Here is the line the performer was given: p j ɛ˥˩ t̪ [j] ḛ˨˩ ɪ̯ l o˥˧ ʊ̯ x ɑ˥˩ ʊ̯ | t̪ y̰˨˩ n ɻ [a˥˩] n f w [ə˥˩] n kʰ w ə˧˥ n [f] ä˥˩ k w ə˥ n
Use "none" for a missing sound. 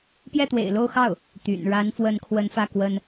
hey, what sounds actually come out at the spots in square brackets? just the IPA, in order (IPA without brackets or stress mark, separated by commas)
w, a˧˥, ə˧˥, f